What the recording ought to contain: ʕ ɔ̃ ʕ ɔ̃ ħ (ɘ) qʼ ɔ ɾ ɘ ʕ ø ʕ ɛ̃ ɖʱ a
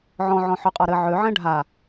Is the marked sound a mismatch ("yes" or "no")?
yes